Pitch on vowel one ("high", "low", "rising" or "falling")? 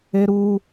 high